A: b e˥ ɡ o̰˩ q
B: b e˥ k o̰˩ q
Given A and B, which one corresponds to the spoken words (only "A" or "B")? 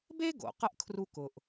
A